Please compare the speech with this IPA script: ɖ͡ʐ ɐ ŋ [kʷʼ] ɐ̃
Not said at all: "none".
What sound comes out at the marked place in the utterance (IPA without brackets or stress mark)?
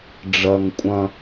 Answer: kʷʼ